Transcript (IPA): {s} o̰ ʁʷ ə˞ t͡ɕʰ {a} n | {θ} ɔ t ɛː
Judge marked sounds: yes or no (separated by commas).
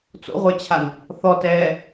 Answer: no, yes, yes